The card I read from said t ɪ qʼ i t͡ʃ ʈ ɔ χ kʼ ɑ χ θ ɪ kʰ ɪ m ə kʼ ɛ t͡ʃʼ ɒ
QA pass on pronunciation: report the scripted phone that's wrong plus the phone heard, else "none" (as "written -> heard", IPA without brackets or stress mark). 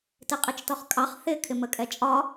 ʈ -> t